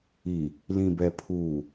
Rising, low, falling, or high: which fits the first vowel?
low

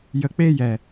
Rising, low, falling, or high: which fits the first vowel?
low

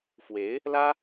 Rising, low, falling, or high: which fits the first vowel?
rising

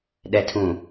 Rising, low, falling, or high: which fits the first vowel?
low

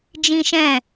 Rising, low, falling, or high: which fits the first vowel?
high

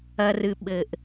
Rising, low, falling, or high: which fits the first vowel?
low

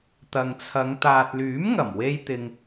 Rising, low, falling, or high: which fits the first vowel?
low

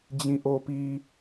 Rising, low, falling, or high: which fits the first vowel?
low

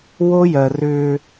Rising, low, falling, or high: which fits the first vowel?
high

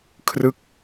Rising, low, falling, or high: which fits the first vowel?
falling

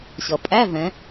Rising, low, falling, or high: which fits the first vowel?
low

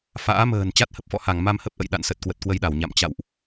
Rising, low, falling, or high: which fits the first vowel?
rising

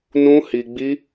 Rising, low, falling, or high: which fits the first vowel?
high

